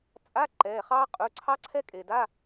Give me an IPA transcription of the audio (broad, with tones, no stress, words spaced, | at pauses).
t͡sʼa˧˥˧ ǃɛː˩˧˩χɑː˦˥ qʼɵ˩˧˩ǀʰɑ˦˥ǀʰɛ˦˥kʼe˩ da˧˥˧